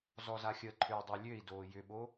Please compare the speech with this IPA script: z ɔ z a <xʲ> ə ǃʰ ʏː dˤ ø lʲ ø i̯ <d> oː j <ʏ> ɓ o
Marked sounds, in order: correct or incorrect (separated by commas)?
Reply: correct, correct, correct